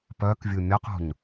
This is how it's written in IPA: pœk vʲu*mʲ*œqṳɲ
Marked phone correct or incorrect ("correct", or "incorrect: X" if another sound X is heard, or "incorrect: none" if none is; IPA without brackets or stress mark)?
correct